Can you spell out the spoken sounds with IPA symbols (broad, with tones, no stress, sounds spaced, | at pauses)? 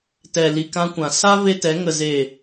t ɛ˨ l i˨ k ã˧ kʷ ã˨ s a˦ v e˦ t ɛ˨˦ ŋ ə˨ z e˨